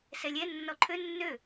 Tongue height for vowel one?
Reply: mid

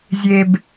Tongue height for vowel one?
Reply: mid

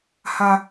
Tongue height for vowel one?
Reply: low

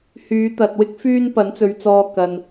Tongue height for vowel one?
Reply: high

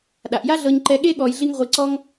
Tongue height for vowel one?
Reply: low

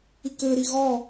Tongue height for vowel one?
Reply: high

